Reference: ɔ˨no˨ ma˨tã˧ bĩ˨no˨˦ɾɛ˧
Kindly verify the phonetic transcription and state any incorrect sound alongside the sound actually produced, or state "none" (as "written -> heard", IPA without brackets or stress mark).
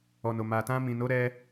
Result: b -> m